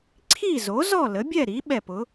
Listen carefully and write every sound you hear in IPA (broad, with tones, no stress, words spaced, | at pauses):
ǀʰi˥˨zo˩˥ zɔ˥˨lə˩˥bʲɛ˥˨ɾi˩˥ ɓɛ˧˩pʊ˩˥